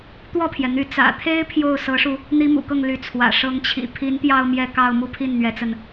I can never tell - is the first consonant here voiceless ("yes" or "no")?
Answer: yes